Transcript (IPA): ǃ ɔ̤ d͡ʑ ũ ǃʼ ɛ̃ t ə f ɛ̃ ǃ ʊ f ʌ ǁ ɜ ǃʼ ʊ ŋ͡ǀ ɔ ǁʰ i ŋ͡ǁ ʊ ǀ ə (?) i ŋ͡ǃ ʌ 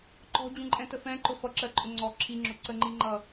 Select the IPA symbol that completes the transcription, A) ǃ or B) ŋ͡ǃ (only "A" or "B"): B